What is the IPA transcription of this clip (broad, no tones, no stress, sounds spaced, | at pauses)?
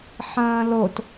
ħ ɐ̃ː l o t